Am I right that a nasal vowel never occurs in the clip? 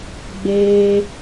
yes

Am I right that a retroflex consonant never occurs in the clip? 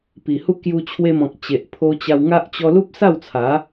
yes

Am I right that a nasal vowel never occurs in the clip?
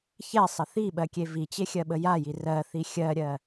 yes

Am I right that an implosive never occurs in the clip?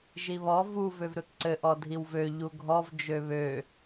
yes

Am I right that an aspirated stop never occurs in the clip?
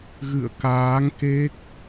yes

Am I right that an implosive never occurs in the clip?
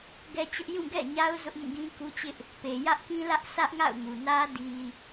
yes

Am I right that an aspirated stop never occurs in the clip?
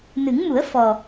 yes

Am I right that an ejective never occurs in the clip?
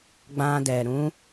yes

